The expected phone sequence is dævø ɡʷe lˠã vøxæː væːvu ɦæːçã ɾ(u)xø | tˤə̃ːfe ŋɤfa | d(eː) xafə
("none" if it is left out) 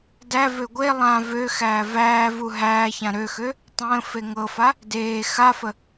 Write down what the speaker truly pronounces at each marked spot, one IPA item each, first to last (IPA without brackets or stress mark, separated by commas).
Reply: ø, eː